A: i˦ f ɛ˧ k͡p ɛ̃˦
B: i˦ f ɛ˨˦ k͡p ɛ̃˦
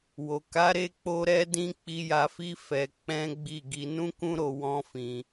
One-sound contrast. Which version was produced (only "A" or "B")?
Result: A